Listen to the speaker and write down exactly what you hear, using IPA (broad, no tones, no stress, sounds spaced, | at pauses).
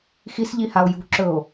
x i s ʎ i h a o̯ j ṳ ǁ ɵ o̯